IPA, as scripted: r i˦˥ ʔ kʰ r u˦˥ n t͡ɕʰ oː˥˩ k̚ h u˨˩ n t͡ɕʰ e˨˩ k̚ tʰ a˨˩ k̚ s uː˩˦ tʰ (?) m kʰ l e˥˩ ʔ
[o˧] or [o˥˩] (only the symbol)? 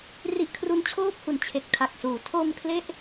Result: o˧